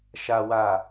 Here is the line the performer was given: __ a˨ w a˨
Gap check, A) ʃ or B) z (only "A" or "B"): A